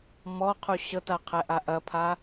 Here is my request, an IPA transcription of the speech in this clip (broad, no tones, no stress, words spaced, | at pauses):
mɔqʰu ɕɤta qʰɛʔaʔɐpʰa